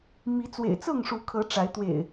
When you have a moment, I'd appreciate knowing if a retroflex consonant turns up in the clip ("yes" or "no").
yes